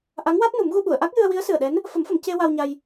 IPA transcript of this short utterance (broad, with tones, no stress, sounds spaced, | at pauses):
ʔ a˧˥ ŋ w a˦˥ t̚ n u˨˩˦ m ɣ u˧ ɓ u˨˩˨ ə̯ ʔ a˦˥ k̚ j ɨ˧ ə̯ w i˧˥ ə̯ s ɨ˨˩ ə̯ ɗ ɛ˧˥ n | f ə˨˩˦ m f ə˨˩˨ m c e˧ w a˧ w ɲ a˧ j